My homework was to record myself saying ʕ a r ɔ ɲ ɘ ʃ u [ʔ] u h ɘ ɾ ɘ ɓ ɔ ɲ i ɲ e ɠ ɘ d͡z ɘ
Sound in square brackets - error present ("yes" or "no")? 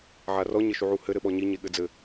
yes